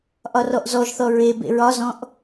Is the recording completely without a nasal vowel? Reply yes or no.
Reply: no